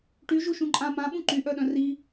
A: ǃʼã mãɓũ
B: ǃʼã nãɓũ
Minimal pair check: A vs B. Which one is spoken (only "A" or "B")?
A